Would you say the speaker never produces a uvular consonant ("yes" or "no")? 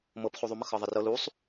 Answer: no